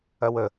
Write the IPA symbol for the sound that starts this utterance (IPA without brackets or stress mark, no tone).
ɐ